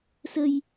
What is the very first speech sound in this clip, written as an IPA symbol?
s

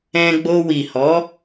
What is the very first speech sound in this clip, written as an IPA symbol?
ɛ̃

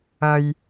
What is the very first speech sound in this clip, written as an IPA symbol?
ɐ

